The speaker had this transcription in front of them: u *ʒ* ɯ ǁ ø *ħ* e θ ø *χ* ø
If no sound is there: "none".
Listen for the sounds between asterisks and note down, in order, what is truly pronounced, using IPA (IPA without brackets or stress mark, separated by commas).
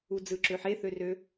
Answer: d͡z, ħ, r